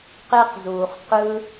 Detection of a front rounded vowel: absent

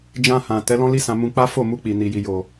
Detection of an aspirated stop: absent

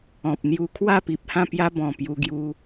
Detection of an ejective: absent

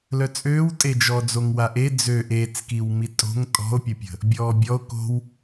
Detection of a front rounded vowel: present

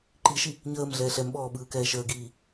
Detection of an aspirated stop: absent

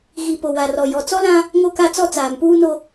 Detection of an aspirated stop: absent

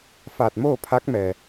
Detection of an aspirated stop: present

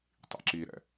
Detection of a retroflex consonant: absent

